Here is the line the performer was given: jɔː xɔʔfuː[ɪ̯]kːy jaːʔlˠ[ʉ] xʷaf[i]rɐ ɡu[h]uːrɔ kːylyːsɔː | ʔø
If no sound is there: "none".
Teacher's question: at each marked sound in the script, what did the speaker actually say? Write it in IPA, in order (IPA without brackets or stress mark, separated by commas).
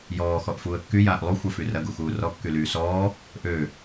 ə̯, u, y, x